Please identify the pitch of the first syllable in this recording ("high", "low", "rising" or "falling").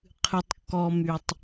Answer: low